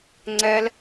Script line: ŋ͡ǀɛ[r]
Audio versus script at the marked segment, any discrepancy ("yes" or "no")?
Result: yes